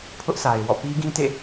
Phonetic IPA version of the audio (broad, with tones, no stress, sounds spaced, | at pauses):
pʰ ʊ˦ ʔ s a˨ ɪ̯ w ɔ̰˦˨ p i˦ ɡ ĩ˦ t ḛ˦˨